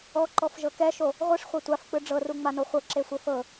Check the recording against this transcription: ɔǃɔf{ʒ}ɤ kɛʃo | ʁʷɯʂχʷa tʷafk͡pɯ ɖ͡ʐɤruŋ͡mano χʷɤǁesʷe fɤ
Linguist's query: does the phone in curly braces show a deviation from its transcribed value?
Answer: no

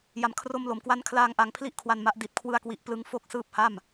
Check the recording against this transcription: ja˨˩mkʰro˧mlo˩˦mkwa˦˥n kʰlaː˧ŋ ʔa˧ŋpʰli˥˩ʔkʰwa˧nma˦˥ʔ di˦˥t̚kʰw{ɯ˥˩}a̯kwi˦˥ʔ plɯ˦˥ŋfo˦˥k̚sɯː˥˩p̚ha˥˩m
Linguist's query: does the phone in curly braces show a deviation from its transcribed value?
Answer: no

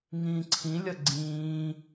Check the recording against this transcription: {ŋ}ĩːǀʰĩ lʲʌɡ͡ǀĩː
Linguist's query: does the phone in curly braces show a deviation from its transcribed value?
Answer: no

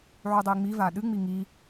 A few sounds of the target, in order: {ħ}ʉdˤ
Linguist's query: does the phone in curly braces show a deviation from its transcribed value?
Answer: yes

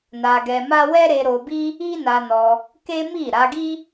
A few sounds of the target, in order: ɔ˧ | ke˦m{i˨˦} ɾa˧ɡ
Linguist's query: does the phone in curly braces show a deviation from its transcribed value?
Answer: yes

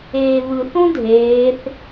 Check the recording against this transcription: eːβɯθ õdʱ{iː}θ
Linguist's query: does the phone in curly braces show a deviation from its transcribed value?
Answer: yes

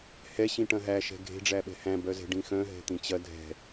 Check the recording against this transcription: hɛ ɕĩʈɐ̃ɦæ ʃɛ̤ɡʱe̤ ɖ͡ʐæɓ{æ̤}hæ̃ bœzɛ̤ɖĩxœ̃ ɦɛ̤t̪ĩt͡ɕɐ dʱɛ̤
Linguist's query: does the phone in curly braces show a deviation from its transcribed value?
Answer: yes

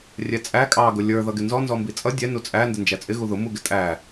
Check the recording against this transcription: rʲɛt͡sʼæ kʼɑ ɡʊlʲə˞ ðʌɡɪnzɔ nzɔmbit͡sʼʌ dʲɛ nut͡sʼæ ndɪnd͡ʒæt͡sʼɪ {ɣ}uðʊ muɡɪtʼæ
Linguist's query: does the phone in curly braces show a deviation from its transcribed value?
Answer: no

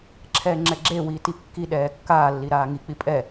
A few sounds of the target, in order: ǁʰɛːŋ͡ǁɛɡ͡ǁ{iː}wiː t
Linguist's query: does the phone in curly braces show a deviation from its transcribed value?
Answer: yes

